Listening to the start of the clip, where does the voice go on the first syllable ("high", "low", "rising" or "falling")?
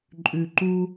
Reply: low